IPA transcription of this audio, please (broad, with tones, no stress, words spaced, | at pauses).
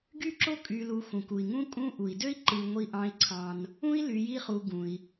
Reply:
ɡy˥ǁo˥kʼy˨lu˨ xũ˩ku˩i̯ ŋũ˥kʼũ˦ ʔu˩i̯dø˥i̯ ǃɯ˨ ŋʷi˨ʔɑ̃˨i̯ǀʰɑ̃˩n | ũ˦i̯ ly˨ji˦χu˨ ɡũ˩i̯